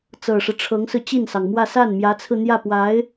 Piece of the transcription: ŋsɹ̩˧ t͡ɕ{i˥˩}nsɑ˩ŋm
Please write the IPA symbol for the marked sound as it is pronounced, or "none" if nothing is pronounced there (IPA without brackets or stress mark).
i˥˩